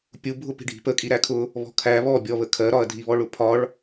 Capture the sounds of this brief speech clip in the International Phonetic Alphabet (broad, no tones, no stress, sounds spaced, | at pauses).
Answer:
pʲ u bʱ ʊ p i̤ ɖʱ i̤ p ə kʼ i ɾ æ kʰ ʊ | β ɔ̤ kʰ æ β ɔ bʲ ɔ β ə kʰ ɜ ɾ ɒ ɐ̯ dʱ i β ɔ ɭ ʊ pʰ ɒ ɭ